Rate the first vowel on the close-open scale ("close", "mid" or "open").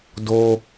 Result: mid